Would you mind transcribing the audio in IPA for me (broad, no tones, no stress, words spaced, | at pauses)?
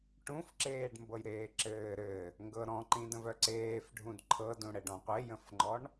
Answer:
ʈũfǁeːɖ mbɤjɾeːǁɘː ɾɘ | ŋɡɤɾɔ̃ǃĩdə̃v œǀeːf ɖʱũdǃʰɤdũɽɘ ɖɔ̃qʷejə̃fŋ͡ǃɔɳ